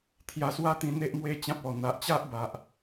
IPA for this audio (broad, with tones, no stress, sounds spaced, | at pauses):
t̪ʰ j a˧ s w a˦ t̪ ĩ˧ n̪ e˦ ʔ m w e˦ t͡ɕ ã˦ p̚ ɔ˨˩ n̪ a˨ ʔ t͡ɕ a˦ ʔ b a˨ ʔ